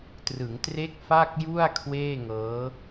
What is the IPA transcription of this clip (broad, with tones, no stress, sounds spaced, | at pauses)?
t r ɯ˩˦ ŋ t r e˦˥ k̚ f a˥˩ k̚ j u˥˩ a̯ kʰ w eː˥˩ ŋ ɤː˦˥